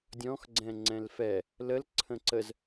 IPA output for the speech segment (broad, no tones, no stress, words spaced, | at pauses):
dʲɔ̃x ɡ͡ǀɛ̃ŋ͡ǀɛ̃lfɛ | ləl ǀʰə̃ǀəz